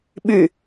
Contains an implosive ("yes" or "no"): yes